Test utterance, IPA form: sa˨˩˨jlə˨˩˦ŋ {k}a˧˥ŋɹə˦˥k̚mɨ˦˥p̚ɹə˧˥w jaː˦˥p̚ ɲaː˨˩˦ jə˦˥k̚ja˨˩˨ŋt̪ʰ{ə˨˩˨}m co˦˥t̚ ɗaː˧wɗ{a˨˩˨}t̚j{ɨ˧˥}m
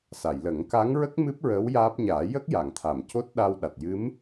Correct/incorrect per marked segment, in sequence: correct, incorrect, incorrect, correct

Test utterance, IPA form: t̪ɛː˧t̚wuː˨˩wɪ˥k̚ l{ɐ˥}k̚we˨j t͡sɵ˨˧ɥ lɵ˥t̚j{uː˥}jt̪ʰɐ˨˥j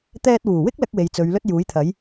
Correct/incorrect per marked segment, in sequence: correct, incorrect

